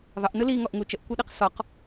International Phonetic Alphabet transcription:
ðˤ ə ʔ n ɯ l i ŋ ɔ ʔ ŋ u t͡ʃ ə ʔ kʷ ɯ ɗ ɯ q s ɔ q

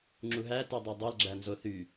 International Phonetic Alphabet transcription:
ŋ͡ǁ u ɦ æ t i dˤ e dˤ e l ɡ͡ǁ æ n z o θ y

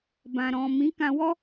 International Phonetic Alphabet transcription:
b ã˨ ɾ ɔ̃˨ m ĩ˨˦ k ã˧ w ɔ˦

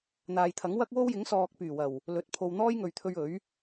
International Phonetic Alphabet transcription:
n̪ aː˨ j t̪ʰ ɐ˨˥ ŋ w ɐ˥ k̚ w o˥ w j ɪ˨˥ ŋ s ɔː˨ k̚ p yː˨˩ w ɐ˨˩ w | l ɵ˨˥ t̚ pʰ o˧ w n̪ ɔː˥ j ŋ ɵ˨ ɥ t̪ʰ ɵ˧ ɥ ɵ˨˥ ɥ

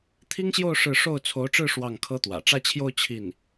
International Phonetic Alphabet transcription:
t̪ʰ i˥ ŋ ɕ j o˥˧ ʊ̯ ʂ ɻ̩˥˧ ʂ o˥˩ ʊ̯ t͡sʰ o˧˥ ʊ̯ ʈ͡ʂ ɻ̩˥˧ ʂ w ɑ˥˩ ŋ kʰ ɤ˥ t̪ w ä̰˨˩ ʈ͡ʂ ä˥˧ t͡ɕʰ j o˥˧ ʊ̯ t͡ɕʰ i˥˩ n

